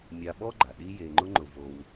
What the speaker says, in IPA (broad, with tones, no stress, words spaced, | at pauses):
mʲa˧ɓɔ˥ɡ͡ǃa˩ ɗi˥je˧ŋ͡ǃʊ˥ŋ͡ǃʊ˧ vo˧w